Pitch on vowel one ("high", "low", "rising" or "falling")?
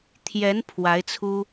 rising